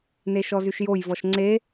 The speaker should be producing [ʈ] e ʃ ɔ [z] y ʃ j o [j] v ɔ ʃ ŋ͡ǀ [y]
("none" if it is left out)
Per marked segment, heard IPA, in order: n, z, j, e

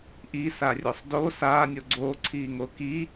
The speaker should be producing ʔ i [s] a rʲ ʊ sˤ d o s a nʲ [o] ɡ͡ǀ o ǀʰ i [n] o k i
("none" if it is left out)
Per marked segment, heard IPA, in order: s, o, ŋ

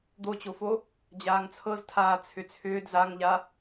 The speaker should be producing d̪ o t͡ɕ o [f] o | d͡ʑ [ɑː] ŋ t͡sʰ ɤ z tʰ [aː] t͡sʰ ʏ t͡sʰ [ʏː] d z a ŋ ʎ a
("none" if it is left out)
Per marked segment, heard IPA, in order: f, aː, aː, ʏː

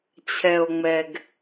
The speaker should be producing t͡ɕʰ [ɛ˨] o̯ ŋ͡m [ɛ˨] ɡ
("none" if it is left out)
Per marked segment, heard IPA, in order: ɛ˨, ɛ˨

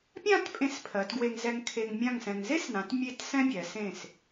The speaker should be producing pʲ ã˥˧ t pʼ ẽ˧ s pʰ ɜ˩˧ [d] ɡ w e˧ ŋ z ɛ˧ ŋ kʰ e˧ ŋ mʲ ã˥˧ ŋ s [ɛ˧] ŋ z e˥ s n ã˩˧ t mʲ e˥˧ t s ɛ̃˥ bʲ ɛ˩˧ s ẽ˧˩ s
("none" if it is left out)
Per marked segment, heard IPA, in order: t, ɛ̃˧

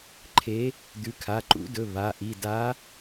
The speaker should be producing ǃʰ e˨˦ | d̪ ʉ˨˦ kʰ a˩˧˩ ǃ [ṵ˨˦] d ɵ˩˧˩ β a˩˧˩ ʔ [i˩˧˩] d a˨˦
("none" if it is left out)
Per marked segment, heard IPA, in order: ṵ˨˦, i˩˧˩

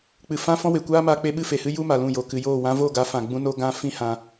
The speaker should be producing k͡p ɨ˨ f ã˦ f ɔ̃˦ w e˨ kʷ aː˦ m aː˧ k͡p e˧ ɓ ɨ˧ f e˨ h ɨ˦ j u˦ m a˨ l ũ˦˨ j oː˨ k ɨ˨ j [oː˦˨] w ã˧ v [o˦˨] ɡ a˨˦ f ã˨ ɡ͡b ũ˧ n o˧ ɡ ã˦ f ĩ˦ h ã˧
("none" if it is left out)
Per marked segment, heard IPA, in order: oː˦˨, o˦˨

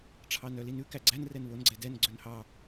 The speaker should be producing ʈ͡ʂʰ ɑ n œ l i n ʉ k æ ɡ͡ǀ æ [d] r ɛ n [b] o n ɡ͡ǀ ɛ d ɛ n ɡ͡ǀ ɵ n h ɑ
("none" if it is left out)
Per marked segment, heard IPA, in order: n, β

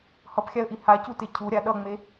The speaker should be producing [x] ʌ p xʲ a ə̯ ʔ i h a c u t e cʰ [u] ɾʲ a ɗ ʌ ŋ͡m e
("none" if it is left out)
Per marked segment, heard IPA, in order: h, u

